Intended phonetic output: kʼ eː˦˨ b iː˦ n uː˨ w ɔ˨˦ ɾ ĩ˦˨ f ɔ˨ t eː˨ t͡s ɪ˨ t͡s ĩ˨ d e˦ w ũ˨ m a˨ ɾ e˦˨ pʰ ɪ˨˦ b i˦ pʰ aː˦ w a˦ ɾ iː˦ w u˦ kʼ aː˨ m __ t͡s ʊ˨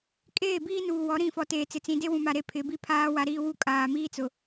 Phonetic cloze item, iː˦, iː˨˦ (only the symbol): iː˦